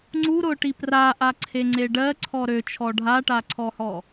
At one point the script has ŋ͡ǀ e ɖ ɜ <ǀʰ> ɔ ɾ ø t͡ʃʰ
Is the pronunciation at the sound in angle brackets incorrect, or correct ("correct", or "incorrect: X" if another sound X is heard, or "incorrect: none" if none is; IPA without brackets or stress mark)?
correct